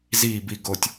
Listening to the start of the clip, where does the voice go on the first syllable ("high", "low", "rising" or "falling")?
falling